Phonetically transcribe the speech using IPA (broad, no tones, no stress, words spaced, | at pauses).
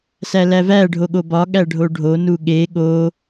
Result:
sælævæ ɖʱoɠobɒ ɠæɖʱoɖʱo nuɠe ɠo